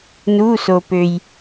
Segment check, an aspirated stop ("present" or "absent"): absent